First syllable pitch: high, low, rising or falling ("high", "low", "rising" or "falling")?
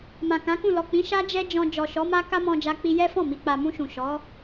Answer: low